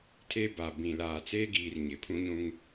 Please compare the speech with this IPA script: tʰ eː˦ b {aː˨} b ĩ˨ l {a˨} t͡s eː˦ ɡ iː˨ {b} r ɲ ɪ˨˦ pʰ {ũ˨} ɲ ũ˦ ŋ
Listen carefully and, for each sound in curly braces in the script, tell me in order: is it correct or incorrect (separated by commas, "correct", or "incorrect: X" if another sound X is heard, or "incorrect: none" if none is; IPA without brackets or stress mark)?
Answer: correct, incorrect: aː˨, incorrect: none, incorrect: ũ˦